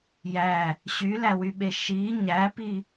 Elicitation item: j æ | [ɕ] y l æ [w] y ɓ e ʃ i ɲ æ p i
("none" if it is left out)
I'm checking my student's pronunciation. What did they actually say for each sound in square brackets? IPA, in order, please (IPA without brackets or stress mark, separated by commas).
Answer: ɕ, w